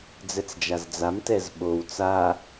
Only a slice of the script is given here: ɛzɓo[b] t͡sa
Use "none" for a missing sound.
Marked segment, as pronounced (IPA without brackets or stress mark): w